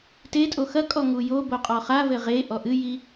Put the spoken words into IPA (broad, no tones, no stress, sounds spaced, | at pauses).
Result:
t e tʼ o x ɐ kʼ ɔ ŋ u j o b o qʼ ɔ χ a v ɘ ʁ e ʔ ɔ ʔ ɨ j i